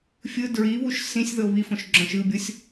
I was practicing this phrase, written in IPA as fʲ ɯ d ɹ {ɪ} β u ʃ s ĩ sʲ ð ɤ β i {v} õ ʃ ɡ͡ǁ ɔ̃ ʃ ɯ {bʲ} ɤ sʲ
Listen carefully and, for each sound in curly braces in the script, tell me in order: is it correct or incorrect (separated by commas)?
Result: incorrect, incorrect, correct